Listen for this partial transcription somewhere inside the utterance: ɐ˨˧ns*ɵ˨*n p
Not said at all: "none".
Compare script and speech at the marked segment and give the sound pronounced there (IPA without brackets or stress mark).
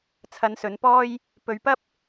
ɵ˨˧